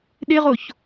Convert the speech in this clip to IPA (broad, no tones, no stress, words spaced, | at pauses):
ɗeʁoç